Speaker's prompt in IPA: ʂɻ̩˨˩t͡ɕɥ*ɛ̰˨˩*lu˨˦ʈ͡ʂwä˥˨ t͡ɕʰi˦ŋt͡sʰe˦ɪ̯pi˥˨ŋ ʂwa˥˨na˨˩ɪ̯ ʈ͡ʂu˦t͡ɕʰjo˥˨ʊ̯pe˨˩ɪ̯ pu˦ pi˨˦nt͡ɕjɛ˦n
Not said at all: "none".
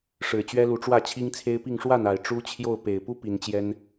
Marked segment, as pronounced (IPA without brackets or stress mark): ɛ˦